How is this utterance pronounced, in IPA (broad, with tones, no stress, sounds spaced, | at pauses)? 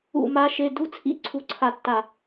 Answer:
ṵ˦˨ m a˦˥ ʃ e˧˥˧ d u˧˥˧ t͡sʰ ḭ˧˥˧ ǀʰ u˧˥˧ ǀʰ a˦˨ tː a˦˨